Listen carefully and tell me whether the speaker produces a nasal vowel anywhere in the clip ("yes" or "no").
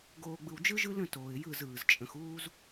yes